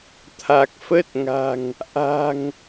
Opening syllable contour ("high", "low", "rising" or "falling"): low